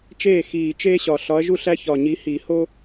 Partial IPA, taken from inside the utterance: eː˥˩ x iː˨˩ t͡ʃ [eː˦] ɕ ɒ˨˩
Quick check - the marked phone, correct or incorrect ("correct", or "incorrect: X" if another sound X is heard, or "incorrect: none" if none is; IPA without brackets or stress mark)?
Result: correct